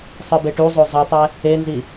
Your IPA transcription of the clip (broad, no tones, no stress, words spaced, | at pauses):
sˤɯbeʈuzˤo zˤitˤɛ | enzi